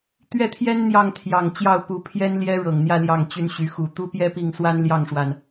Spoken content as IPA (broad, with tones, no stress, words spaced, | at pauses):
t̪ɥɛ˥˩t̪ʰjɛ˥n n̪jɑ˥˩ŋt̪ʰjɑ˨˩ŋt͡ɕjɑ˥˩ʊ̯ pu˧˥pʰjɛ˥nljɛ˥ ɻɤ˨˩ŋn̪jä˥˧ ljɑ˥˩ŋt͡ɕy˥nɕy˧˥ xu˨˩ t̪u˥ pjɛ˥pi˥˩ŋswa˥n ljɑ˥˩ŋʂwa˩n